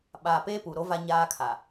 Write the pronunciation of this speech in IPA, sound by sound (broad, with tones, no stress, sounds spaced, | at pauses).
ɓ aː˨ p eː˦ p u˨ ɾ o˦ v a˦ ɲ aː˦ kʰ a˨